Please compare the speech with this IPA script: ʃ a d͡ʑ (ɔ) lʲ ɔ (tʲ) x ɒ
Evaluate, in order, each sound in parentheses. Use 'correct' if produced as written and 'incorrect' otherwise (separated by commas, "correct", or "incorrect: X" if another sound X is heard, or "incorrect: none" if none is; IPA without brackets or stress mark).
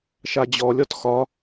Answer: correct, incorrect: t